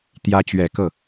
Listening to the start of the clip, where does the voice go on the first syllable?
rising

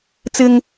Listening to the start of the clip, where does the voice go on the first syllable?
high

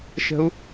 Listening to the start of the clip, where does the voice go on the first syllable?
high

